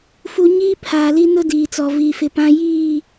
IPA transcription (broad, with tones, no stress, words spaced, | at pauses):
fu˨ ɲiː˦ pʰaː˨li˦nʊ˦ diː˨t͡sɔ˨ vi˨fɪ˨pã˦ jiː˦˨